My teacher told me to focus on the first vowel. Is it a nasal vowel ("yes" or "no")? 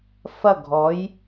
no